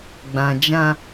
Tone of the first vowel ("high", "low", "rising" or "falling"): low